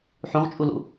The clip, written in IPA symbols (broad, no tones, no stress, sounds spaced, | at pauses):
ħ ũ ʁ t͡ʃʼ u l ṵ